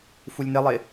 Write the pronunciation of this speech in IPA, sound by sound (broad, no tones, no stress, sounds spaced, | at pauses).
f u lʲ n ɪ lˠ ɪ